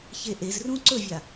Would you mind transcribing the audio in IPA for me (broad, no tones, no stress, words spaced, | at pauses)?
çeʔezrũ ǀɵvʲa